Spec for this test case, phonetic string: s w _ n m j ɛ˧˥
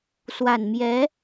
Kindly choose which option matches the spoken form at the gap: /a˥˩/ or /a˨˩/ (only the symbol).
a˨˩